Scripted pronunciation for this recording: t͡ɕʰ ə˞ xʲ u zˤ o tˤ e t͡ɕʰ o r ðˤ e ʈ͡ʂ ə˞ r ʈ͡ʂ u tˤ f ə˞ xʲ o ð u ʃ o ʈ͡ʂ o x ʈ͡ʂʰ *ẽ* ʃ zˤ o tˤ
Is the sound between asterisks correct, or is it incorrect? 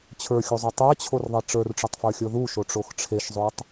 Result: incorrect